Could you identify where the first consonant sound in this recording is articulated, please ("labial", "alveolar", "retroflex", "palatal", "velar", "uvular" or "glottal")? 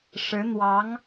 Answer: retroflex